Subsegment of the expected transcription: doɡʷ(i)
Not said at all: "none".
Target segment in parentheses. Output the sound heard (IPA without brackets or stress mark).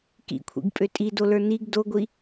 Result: i